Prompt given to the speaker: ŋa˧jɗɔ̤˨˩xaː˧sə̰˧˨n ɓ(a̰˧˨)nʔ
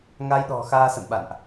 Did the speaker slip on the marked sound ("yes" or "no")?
no